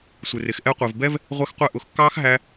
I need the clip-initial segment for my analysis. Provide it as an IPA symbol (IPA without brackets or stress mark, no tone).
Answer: sʷ